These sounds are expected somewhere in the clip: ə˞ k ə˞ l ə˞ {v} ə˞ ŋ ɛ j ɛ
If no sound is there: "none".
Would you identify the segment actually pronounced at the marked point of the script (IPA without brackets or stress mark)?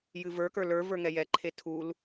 v